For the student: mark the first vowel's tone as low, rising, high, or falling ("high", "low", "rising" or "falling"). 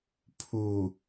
low